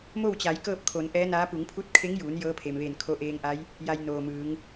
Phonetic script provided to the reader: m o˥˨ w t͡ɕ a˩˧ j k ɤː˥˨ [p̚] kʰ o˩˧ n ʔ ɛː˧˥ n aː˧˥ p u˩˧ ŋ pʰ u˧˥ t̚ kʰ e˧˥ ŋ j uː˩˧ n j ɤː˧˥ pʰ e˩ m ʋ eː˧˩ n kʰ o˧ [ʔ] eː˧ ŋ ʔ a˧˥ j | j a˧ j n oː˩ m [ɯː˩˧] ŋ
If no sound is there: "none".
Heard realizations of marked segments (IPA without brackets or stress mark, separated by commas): p̚, ʔ, ɯː˩˧